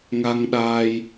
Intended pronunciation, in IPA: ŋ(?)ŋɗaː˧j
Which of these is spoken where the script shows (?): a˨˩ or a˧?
a˧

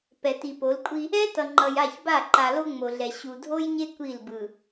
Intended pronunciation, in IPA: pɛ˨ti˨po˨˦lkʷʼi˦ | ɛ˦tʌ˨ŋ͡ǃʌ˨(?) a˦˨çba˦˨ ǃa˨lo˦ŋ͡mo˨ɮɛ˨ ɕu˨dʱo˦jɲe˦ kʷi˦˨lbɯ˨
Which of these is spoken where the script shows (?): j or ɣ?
j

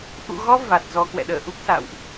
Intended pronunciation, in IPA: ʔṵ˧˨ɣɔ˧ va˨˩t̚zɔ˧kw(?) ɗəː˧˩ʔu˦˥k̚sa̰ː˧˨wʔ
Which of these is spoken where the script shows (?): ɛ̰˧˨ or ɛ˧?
ɛ̰˧˨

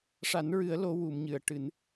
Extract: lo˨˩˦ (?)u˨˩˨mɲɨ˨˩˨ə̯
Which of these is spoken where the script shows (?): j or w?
w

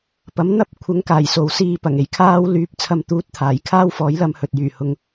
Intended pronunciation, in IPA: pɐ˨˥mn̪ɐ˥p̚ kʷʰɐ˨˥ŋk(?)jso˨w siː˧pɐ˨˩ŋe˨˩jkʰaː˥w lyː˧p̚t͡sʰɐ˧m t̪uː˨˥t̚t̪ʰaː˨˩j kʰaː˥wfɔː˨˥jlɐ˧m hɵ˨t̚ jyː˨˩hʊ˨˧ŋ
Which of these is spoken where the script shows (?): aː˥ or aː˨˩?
aː˨˩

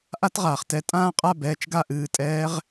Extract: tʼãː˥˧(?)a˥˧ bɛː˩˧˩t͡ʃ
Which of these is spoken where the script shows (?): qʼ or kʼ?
qʼ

